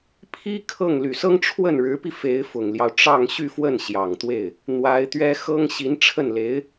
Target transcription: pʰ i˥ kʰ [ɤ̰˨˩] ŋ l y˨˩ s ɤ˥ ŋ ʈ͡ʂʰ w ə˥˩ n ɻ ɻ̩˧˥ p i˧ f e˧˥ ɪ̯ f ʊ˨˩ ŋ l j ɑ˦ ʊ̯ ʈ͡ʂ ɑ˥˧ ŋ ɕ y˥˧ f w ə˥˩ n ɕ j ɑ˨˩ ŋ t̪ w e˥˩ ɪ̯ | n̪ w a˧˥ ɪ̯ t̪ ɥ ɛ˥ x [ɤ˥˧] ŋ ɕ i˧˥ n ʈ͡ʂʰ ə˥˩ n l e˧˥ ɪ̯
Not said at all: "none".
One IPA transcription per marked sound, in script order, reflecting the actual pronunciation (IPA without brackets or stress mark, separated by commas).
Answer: ɤ˥˩, ɤ˥